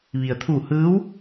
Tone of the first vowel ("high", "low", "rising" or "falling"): low